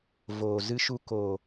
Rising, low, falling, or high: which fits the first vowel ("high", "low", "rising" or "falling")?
low